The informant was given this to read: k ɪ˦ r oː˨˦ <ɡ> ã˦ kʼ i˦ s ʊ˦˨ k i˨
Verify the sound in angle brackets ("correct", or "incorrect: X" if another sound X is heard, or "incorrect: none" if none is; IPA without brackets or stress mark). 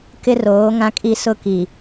incorrect: ŋ